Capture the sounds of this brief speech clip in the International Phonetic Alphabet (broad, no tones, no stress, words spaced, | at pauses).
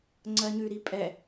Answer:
ŋ͡ǀɜɲʉ ɾipʼɛ